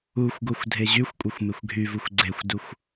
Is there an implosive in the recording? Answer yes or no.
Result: no